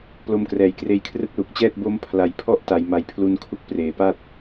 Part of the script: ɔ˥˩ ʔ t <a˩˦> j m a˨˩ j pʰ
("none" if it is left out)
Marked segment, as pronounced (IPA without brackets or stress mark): a˩˦